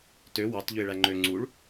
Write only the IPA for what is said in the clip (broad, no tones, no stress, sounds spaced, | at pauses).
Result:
t ø w ɑ t ʎ ø ɪ̯ ɭ æ ŋ͡ǃ ø ŋ͡ǀ u ɭ